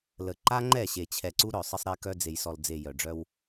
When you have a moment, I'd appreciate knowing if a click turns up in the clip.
yes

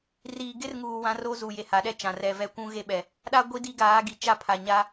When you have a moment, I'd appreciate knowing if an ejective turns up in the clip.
no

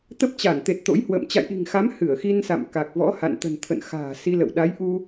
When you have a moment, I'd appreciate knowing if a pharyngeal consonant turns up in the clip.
no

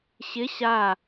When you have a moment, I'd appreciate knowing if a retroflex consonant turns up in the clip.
no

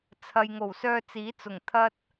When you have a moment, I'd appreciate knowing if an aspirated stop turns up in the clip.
yes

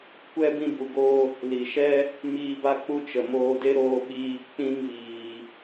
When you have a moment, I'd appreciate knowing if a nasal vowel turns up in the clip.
yes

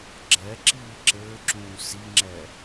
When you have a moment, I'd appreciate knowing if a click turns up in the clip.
yes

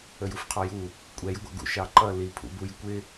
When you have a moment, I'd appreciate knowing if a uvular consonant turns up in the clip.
yes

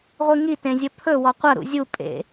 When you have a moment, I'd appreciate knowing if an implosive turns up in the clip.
no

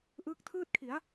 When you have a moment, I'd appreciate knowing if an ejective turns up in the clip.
no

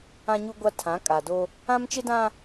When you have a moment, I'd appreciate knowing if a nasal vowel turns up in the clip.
yes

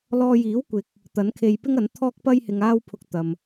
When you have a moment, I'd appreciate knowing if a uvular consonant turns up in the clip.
no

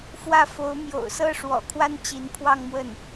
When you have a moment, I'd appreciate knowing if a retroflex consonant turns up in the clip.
yes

